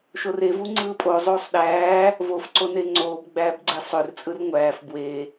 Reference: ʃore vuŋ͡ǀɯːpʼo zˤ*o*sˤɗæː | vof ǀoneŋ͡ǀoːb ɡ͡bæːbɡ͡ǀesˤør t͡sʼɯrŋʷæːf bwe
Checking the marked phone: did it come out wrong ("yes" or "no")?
yes